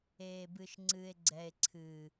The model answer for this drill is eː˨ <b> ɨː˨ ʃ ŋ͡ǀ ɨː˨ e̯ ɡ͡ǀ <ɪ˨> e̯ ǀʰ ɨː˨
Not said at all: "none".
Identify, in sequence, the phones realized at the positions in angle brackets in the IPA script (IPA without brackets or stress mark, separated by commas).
b, ɛ˨